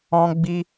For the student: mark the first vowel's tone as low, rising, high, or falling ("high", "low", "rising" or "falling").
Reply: high